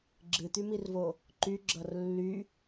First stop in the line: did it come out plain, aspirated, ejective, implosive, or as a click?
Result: click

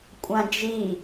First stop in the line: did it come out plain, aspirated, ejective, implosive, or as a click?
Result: ejective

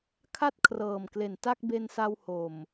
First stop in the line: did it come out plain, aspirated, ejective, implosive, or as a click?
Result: aspirated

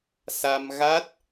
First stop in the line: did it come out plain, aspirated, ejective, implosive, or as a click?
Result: plain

